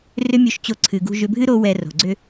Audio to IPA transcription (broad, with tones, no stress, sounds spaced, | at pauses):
r ʏ˦ mʲ o˧ ʃ t͡ɕ o˧ ǀʰ ɨ˨ ɡ ṳ˧ ʒ ʏ˧ bʱ ɨ˦ ɾ o˦ w ɛ˧ r o̤˨ ɡ͡ǀ ʏ˧